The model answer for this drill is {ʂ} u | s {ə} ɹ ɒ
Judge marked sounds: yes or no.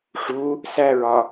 yes, no

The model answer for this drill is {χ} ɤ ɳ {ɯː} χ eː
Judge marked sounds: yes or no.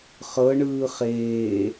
yes, yes

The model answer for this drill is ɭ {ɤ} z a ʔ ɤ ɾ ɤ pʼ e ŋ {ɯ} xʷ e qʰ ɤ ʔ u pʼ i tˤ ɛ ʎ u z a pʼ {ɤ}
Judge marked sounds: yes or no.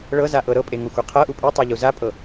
yes, no, yes

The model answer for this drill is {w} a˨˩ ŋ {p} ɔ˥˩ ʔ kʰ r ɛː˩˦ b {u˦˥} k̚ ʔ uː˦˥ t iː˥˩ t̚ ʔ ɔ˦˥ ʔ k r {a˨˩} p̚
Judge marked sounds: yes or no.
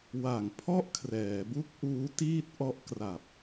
yes, no, yes, yes

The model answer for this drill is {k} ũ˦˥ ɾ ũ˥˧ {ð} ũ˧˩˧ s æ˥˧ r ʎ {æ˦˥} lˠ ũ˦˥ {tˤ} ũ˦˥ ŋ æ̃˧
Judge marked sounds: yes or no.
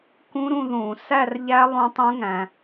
yes, yes, yes, yes

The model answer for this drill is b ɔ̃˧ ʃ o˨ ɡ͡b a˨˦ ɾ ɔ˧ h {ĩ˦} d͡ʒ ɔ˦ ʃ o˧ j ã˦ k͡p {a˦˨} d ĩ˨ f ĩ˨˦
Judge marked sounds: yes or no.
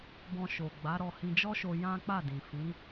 no, yes

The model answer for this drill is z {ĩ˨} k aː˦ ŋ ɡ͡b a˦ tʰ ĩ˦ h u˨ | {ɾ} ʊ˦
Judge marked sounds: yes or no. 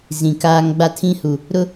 yes, yes

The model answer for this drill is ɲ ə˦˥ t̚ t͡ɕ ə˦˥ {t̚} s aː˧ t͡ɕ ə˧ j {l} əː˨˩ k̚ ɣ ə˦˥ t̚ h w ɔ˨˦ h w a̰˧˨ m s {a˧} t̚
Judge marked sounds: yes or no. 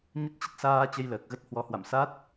yes, yes, no

